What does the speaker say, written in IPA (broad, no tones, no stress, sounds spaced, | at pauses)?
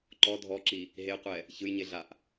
ǃ ɔ dʱ ɔ ǁ i | ɦ e qʷ ɛ | ç ɯ j ɲ e ɮ a ʔ